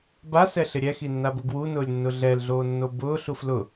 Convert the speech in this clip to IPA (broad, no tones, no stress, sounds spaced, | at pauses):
b a s ɛ ɬ ɪ ɾʲ ɛ x i nː a b ʊ ɡ w u n ʊː lʲ nː ʊ ɮ ɛ l ɮ oː nː o b ʊː ɬ u f l ʊ